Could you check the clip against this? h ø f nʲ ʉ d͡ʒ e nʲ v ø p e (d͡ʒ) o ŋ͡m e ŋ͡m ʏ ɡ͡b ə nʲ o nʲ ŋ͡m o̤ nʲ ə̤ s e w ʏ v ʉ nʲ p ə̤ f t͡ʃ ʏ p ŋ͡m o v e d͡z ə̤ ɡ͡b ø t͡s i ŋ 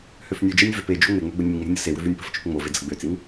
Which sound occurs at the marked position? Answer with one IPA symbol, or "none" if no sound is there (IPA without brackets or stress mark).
d͡ʒ